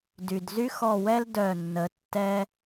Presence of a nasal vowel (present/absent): absent